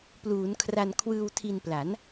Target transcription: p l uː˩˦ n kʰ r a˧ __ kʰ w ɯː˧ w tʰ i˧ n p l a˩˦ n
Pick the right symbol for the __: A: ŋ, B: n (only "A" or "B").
B